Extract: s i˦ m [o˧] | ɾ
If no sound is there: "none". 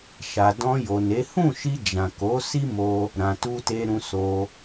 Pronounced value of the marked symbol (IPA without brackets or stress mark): o˧